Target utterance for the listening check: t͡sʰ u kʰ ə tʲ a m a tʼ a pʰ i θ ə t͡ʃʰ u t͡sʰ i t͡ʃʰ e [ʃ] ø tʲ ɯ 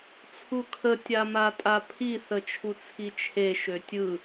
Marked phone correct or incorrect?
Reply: correct